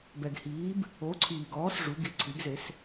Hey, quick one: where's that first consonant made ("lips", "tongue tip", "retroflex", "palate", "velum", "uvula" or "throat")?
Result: lips